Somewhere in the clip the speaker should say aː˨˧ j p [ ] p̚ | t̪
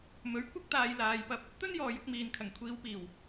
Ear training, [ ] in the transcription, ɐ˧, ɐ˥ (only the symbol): ɐ˧